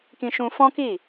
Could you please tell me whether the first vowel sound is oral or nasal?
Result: nasal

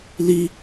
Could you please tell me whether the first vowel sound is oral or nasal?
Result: oral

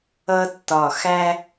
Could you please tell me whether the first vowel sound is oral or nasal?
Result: oral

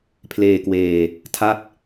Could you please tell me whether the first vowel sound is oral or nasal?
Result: oral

